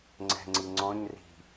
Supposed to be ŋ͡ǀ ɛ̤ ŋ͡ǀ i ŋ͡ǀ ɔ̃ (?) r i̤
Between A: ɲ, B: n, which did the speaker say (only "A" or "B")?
A